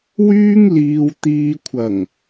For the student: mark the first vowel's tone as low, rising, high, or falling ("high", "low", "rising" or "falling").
high